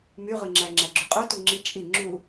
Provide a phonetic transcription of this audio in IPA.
m y ʁ ɯ ŋ͡ǁ æ ŋ͡ǁ æ ɡ͡ǁ y qʼ o t u ŋ͡ǁ i t͡ʃʼ i ŋ͡ǁ u

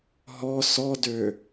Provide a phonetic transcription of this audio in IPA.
ɦ ɔ s ɔ d ø

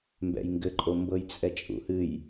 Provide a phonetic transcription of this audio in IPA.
m b ɛ̰ j ŋ ɡ ɘ ǃʼ o m b ɤ j t͡sʼ ɛ t͡ʃʼ ṵ h ɨ j

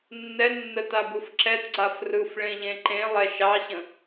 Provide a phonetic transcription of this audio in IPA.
nː ɛ nː ə t a b ɯ f ǁ ɛ t ɡ͡ǀ a f r ɯ f ɭ ẽ ʎ ẽ ǃ ẽ lˠ ɛ ʃ ɑ ɕ ə̃

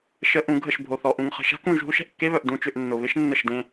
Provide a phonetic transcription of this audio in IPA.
ʃ ə˨ ʔ ũ˨ ɡʱ ə˦˨ ʃ bʱ o˨ θ ɔ˨ ʔ ũ˨ ŋ χ ə̤˨ ʃ a̤˦ k ũ˦˨ ʒ ɦ u˦ ʃ ɛ̤˨ ʔ kː e˦ β œ˨ ʔ d ũ˨ t͡ʃ ʏ˨ ʔ nː ʊ˨ β ɪ˦ ʃ nː ə˦˨ ʃ d ẽ˦

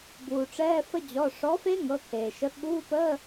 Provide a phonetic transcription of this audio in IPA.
b uː˩ ʈ͡ʂ ɛː˧˥˧ f ə˦˥ d͡ʑ ɔ˩˧˩ ʂ ɔ˩˥ f e˦˥ ŋ ɤ˩˧˩ kʰ eː˩ ʃ ə˩˥ ɠ uː˧˥˧ p əː˧˥˧

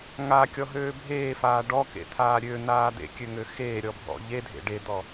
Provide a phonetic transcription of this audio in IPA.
ŋ a kʲ ɔ ɦ øː bʱ eː f aː ɖ ɔ k ḛ t̪ʰ aː ɾʲ ø n̪ aː d̪ ḛ kʲ ø ŋ ø x eː ɾʲ ɔ bʱ ɔ̰ ʎ e dʱ ḛ ɖ e d̪ ɔ

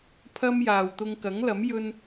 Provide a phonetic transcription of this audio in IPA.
pʰ ɐ˥ m j aː˨ w t̪ ʊ˧ ŋ k ɐ˨˥ ŋ l ɐ˨˥ m j ɵ˥ n

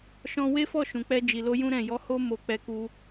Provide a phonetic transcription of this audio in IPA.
ʃ ɔ̃˦ w e˦ f ɔ˦˨ ʃ ũ˨ k͡p ɛ˧ d͡ʒ i˨ l o˧ j ũ˦ ɾ ɛ̃˦˨ j ɔ˨˦ h o˦ m o˧ k͡p ɛ˧ k u˧

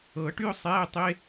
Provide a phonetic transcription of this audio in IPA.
ɤ˨˩˦ ʈ y˥ ʊ̯ sˤ ɛː˧˥˧ tˤ e˧˥˧

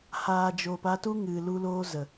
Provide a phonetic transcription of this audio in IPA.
h aː˨ d͡ʒ oː˨ p a˧ t u˦ ŋ ɨ˨ l u˦ l oː˦ z ə˨

